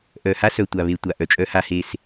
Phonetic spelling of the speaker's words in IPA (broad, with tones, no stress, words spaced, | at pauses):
ʔœ˨ha˦sœ˨ tʷa˨βe˨ tʷa˨ ʔœ˨t͡ʃʼœ˦ha˦he˦s